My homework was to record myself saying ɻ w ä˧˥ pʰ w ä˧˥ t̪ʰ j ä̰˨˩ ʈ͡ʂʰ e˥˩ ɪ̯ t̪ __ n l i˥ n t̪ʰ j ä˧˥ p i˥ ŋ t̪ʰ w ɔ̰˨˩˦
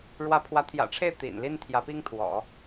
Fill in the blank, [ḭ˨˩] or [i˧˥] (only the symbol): ḭ˨˩